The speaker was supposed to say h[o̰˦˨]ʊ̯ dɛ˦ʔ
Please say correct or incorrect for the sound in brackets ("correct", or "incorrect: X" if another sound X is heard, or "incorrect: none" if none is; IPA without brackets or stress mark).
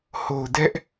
incorrect: o˨